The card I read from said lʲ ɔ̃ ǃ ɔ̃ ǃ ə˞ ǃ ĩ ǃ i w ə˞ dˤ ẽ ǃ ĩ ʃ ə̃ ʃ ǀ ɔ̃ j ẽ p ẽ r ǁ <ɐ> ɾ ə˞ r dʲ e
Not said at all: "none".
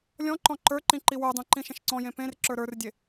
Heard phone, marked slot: ə˞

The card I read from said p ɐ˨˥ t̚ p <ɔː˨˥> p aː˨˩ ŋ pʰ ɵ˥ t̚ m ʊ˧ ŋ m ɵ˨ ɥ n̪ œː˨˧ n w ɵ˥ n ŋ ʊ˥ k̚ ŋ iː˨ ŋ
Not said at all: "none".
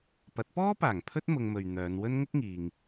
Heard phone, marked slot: ɔː˥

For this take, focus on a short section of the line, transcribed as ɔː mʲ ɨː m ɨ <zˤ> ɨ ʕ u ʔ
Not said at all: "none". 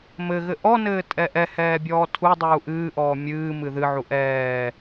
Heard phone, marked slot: ð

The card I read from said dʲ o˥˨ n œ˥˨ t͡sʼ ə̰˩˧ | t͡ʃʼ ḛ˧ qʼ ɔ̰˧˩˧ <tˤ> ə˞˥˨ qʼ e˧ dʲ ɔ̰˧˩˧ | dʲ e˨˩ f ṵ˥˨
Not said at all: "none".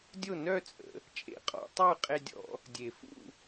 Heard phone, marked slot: tˤ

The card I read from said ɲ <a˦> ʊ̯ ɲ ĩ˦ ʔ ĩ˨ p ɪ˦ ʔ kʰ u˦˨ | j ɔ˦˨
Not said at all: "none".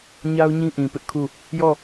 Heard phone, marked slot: a˦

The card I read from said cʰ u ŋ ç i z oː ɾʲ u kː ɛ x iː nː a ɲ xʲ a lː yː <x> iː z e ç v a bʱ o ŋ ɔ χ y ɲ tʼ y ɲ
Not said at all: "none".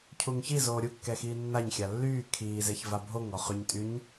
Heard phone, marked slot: kʰ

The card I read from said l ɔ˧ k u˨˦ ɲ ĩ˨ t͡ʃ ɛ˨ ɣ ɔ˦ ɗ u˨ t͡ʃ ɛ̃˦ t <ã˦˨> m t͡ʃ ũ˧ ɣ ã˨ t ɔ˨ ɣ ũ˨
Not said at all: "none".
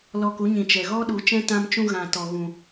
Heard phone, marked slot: ã˧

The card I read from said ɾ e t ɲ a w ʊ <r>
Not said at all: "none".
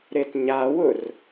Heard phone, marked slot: r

